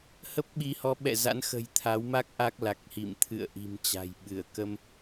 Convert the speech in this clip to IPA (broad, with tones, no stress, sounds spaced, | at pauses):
h ə˦˥ p̚ ɓ i˨˦ h ɔ˨˦ ɓ ɛ̰˧˨ z a̰˧˥ n x ə̤˨˩ j t̪ʰ a˨˦ w m a˦˥ k̚ ʔ a˦˥ k̚ l a˨˩ k̚ h ḭ˧˨ m t̪ʰ ɨ̰˧˨ ə̯ ʔ i̤˨˩ m t͡ɕ a̤˨˩ j ɓ ɨ˧˩ ə̯ k ə˧ m